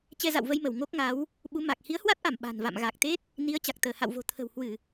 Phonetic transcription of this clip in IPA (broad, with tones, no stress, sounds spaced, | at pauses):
t͡ɕ ɛ˧ z a̰˧˨ w v ə˧ j m ə˧˩ w ŋ o˦˥ k̚ ŋ a˨˦ w | ɓ u˨˦ m a˨˩ k̚ h i˨˦ ə̯ h w a˦˥ t̚ ʔ a˧˩ m ɓ a̤˨˩ n v a̰˧˨ m ɣ a˨˩ k̚ t̪ e˦˥ t̚ | n i˨˦ ə̯ t͡ɕ a˨˩ k̚ t̪ əː˧˩ h a̰˧˨ w v o̤˨˩ t̪ʰ ə̤˨˩ w h w ɨ˧˩˨